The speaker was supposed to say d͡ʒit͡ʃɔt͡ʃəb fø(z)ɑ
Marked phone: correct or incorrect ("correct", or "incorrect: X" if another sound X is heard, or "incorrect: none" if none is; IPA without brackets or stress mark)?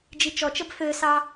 incorrect: s